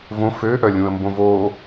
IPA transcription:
võ fø ʔœlʲũə̯mbõvoː

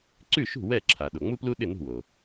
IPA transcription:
ǀʉ˥˩ʃṳ˥˩ wɛ˥˩ǁʰa˩ ɗo˩ŋ͡mu˥plu˥ ɗɪ˥˩nṳ˥˩wo˩

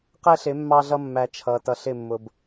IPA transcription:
qɛ˦ɬɪ˨˦ mːɑ˦ɮʌ˦ mːæ˨ t͡ʃʰʌː˨t ʌ˨ɬɪ˦˨mːʊ˨b

